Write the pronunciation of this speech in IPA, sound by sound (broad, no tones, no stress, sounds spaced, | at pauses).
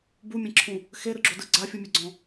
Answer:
b u mʲ ɛ̃ ǁʰ ũ | x e ɾ ɯ ɡ͡ǁ o d ɯ ɡ͡ǀ a fʲ ɯ mʲ ɛ ɡ͡ǀ ɔ̃